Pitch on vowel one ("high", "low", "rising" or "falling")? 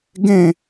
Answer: falling